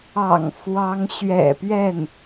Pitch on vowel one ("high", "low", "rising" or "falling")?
low